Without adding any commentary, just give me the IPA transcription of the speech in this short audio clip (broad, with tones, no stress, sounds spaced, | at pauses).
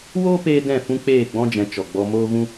w oː˦ p eː˧ d ɛ̃˦˨ f ũ˦ k͡p eː˦˨ ɡ͡b ɔ̃˦ d͡ʒ ɛ̃˨˦ t͡ʃ ɔ˨ ɡ͡b ɔ˧ m oː˦ ɣ ũ˦